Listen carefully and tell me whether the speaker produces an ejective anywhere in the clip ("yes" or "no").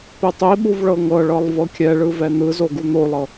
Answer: no